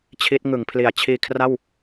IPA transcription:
t͡ɕʰ i˦˥ t̚ ŋ ɯ˩˦ ŋ pʰ l i˩˦ a̯ t͡ɕʰ iː˧ kʰ r a˥˩ w

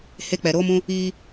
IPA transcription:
h e˦ k͡p ɛ˨ ɾ oː˦ m ũ˦ | iː˦

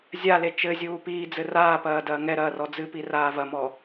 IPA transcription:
zʲ a l e t͡ʃ ɘ zʲ uː p iː d͡z ɘ r aː p ɐː d ɐː ŋ ɛ ɾ ɐː r ɔ d͡z ɨ p i r aː v ɐ m ɔ

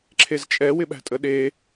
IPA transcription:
ǁʰ e z t͡ʃʼ ɛ w ɪ ɓ æ̤ tʼ ə ɗ e

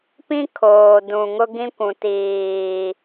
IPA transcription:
p ĩ˦ kʰ oː˨ d ũ˨ ŋ ʊ˦ ɡ ĩ˦ kʷ ũ˨ t iː˨

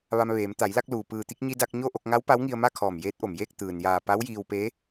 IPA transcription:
ʋ a˧ m ʋ eː˩˧ m t̪ a˩˧ j l a˥˨ k̚ l uː˩ p ɯː˧˩ t̪ i˥˨ k̚ ɲ i˧ d a˧ k̚ ɲ o˥˨ ʔ o˧ k̚ ŋ a˧˥ w p a˧˥ w ŋ i˧ ə̯ m a˥˨ kʰ ɔː˧˩ m j eː˧˥ t̚ ʔ o˩ m j eː˥˨ k̚ t̪ ɯː˩ n j aː˧˩ p a˧˥ w j iː˧ w p e˧˥

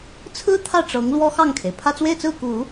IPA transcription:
t͡sʰ ɹ̩˥ t̪ʰ ä˥˩ ʈ͡ʂ ɤ˧˥ ŋ l w ɔ˥ x ɑ˥˩ ŋ kʰ e˩ ɪ̯ pʰ ä˥˧ t͡s w e˥˧ ɪ̯ t͡s ɹ̩˥˩ k u˨˩˦

